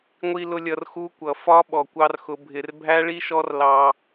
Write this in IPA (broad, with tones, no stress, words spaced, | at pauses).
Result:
ŋʷi˧lʊ˧ lʲʌ˧rxu˦kʷʌ˨ fɒ˦ ɓɔ˨kʷɑ˦rxʊ˧ bʱɪ˨rbʱæ˦ɭi˦ ʃɔ˦rlɑ˧